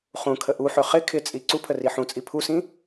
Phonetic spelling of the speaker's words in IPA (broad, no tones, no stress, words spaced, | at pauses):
χũkʰə ʔuħø χɪ kʰɪt͡sʼi ǀupʰə riħũt͡sʼi pʰusĩ